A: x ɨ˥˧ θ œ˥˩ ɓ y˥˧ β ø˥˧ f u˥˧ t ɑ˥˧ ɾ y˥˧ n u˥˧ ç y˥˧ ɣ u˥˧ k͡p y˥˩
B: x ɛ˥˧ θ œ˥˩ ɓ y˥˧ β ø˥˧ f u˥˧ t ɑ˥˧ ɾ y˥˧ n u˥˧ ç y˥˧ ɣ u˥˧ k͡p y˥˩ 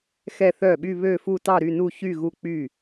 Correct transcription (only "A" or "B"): B